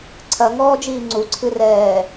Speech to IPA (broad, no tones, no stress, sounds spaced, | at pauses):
ǀʰ ɐ ŋ ɔː d͡ʒ iː ŋ͡ǀ u ǀʰ ɨ r ɛː